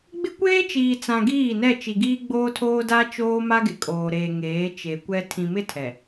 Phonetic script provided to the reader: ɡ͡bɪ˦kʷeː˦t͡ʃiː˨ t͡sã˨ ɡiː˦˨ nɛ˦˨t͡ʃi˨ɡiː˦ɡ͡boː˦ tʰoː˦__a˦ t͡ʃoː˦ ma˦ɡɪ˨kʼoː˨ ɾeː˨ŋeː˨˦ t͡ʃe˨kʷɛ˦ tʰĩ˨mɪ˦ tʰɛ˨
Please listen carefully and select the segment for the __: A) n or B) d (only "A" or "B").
B